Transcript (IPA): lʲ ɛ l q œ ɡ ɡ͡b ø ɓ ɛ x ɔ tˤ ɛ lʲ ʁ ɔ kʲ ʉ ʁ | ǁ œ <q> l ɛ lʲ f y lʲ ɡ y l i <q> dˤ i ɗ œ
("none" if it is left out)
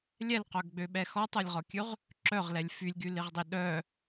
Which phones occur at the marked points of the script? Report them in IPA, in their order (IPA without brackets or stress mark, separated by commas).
ʁ, ʁ